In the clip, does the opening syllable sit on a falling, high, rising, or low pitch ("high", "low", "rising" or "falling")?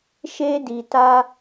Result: high